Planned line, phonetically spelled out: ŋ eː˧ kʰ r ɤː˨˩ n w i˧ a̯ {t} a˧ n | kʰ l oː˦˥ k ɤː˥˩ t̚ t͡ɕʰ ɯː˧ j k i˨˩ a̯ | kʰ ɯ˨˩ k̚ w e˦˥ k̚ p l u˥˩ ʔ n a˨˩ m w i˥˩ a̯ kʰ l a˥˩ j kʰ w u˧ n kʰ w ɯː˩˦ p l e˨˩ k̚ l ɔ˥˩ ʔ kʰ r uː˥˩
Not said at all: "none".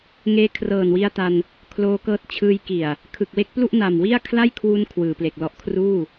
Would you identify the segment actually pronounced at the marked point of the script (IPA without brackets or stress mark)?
t